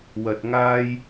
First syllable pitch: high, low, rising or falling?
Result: low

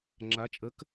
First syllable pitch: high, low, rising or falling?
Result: rising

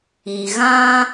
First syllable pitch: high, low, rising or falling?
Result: low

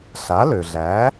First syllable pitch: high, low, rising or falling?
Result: rising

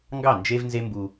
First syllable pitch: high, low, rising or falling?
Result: falling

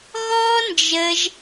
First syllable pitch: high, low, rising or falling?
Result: high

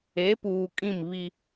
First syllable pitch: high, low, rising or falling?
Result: rising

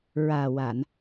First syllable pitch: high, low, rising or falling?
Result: low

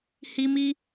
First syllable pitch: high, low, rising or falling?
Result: high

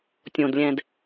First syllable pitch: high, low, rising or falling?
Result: low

